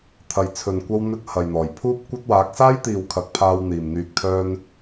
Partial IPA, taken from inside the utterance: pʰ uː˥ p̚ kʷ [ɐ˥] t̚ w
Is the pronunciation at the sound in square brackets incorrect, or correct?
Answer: correct